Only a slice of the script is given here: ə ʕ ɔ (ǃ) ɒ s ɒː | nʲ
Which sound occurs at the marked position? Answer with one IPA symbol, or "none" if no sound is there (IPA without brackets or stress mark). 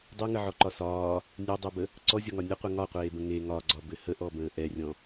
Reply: ǃ